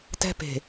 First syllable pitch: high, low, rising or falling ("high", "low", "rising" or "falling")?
high